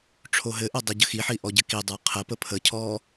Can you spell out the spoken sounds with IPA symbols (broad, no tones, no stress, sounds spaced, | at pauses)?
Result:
ʈ͡ʂʰ o ɦ ɘ ʔ ɘ dˤ ɘ ɟ ə x i ħ i ʔ ɔ ɟ ɘ k i dˤ ə˞ qʰ ə p ə pʰ ə cʰ ɔː